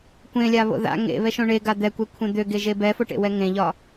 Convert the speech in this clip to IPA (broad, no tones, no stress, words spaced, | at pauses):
kʷẽlʲaβo̰ ða̰ ŋḛβɛʃõ ɳeɡa d̪ɛkʷekʷʰɛ̃ d̪øɡeʒe bɛfoʈḛwɛ ŋẽʎɒ